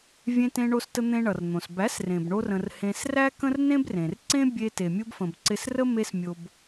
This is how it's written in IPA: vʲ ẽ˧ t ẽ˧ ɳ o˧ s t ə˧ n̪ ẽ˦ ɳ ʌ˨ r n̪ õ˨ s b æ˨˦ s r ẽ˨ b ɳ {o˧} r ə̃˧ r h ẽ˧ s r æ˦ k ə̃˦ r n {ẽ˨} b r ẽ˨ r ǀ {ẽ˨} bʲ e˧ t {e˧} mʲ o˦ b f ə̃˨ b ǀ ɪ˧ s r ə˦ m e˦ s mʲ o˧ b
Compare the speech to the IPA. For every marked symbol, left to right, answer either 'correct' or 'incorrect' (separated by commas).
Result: correct, incorrect, incorrect, incorrect